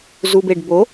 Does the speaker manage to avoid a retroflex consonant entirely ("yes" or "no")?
no